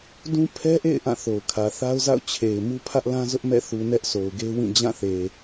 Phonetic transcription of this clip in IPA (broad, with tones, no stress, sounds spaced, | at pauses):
d ũ˦ pʰ ɛ˦ ʔ ḛ˦˨ ɪ̯ ʔ ã˦˨ θ o˨ ʊ̯ kʰ ä˨ θ a˦ ʊ̯ z a̰˦˨ ʊ̯ t͡ɕʰ e˨ ɪ̯ m u˦ pʰ ä˦ ʔ l ã˦ z ʊ˦ ʔ m ɛ̰˦˨ θ u˨ n ɛ˦ ʔ s o˨ ʊ̯ ɡ e˦ w ĩ˦˨ d͡ʑ ã˦˨ θ e˨